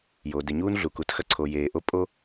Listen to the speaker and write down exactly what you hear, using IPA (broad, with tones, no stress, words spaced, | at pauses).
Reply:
joː˨de˨ɲuː˦n ɮu˨ ku˨txɐ˦ǀʰo˨ jeː˨ʔo˦ pʼo˦